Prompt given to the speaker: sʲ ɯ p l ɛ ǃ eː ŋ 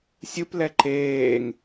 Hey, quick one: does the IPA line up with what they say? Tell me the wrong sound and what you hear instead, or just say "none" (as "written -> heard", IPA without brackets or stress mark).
none